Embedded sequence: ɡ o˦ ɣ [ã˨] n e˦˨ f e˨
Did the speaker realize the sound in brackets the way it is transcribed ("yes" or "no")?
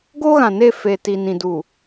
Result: yes